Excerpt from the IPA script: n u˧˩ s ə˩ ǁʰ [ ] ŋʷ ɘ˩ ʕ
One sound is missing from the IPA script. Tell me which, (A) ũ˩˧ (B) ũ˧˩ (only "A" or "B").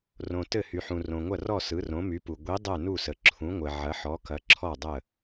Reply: A